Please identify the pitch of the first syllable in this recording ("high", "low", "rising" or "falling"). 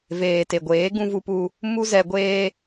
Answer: low